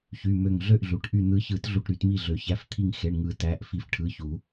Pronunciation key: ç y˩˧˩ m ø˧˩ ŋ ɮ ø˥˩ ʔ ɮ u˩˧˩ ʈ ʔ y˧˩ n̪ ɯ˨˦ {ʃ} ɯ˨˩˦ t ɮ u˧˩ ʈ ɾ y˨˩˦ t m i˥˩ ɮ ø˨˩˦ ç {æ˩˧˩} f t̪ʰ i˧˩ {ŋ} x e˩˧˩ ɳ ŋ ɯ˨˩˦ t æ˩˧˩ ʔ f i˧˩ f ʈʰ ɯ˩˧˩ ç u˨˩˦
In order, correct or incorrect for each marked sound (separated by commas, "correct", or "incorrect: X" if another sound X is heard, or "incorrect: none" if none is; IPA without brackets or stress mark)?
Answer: incorrect: ç, correct, correct